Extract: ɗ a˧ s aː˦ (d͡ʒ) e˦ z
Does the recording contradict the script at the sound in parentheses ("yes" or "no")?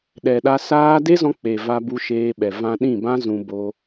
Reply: yes